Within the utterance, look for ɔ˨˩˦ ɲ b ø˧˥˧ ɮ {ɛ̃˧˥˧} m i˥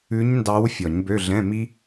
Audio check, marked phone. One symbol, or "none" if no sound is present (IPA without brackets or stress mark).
ɛ̃˧˥˧